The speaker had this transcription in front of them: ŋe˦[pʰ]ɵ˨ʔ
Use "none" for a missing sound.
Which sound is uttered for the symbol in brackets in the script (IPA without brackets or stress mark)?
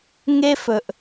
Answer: f